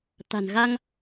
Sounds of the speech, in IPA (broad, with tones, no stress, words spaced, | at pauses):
t̪a̤˨˩nɣa˧ŋ